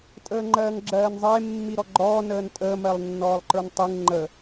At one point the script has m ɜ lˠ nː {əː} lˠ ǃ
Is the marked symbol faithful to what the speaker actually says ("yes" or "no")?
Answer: no